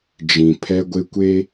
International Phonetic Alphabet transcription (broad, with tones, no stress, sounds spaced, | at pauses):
d͡ʒ ĩ˨ pʰ ɛ˦ ɡʷ ɪ˦ kʷ e˦